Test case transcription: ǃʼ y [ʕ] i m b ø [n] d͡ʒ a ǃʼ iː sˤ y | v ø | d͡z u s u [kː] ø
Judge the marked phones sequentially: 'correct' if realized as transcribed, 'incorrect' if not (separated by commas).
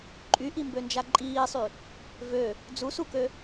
incorrect, correct, incorrect